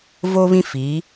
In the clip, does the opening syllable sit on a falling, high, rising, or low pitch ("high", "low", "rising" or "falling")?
high